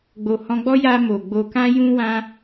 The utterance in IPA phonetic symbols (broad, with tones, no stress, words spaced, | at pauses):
ɡ͡bo˨ hɔ̃˧ɡ͡bɔ˦ ja˧ mo˨ɡ͡bo˧ kã˦jũ˦wã˦